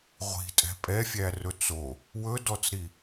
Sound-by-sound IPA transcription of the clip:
ʁʷ i̤ tʼ ɛ̤ pʼ ɛ fʲ æ r ɵ t͡s o | w ɵ d ɔ t͡s ɾ i

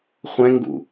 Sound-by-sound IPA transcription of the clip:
χʷ ɛ̃ ŋ ɡ ṵ

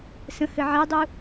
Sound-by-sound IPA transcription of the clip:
s ə̃ h ɘ ʕ ɛ dˤ u

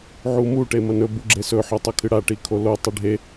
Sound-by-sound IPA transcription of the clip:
ʕ u m u ʈ e m ɐ n ɵ b u ɡ͡ǁ e s ɵ ħ ɵ tˤ ɐ kʰ ɨ ɽ a ʈ i kʰ o l o tˤ ɨ ɖʱ e

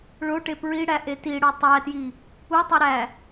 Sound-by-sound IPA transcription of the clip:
ɭ o ʈ e p ɹ i ɽ æ ʔ e t i ɽ o tˤ æ t j i | u tˤ o ɾ æ

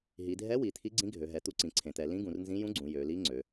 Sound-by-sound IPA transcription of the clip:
ɦ i˩˧ dʱ ɛ˧˥ w i˩˧ t̪ʰ i˧˥ ɡ͡ǀ ĩ˧˥ ɡʱ ø˩˧ ɦ ɛ˩˧ t̪ u˧˥ ǀ ĩ˩˧ ǀʰ ẽ˩˧ t̪ ɛ˩˧ l ĩ˧˥ ɡ ũ˩˧ r n z ĩ˧˥ j ũ˧˥ ɡ͡ǀ ũ˩˧ j ø˩˧ l i˧˥ ŋ͡ǀ ø˩˧

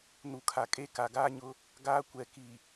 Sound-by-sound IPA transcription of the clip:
n u˨ kʰ a˨ kʼ e˦ k a˨ ɡ aː˦ ɲ ʊ˦ | ɡ aː˦ kʷ ɛ˨ k i˨

